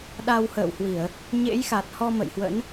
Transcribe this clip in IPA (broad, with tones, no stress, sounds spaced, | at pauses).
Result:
ɗ a˧ w h ə̰ː˧˨ w h w i˧˩˨ ə̯ | ɲ ḛ˧˥ j x a˨˩ t̚ h ɔ˧ m ə̰˧˨ j h w ə̰˧˥ n